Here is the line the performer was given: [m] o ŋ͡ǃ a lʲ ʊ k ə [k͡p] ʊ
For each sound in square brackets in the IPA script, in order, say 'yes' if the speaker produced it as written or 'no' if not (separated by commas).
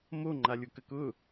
yes, no